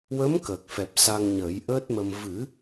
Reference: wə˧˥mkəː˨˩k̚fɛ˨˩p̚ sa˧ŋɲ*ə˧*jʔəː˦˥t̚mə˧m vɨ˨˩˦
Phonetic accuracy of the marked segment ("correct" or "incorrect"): incorrect